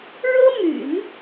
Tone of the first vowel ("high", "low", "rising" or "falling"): high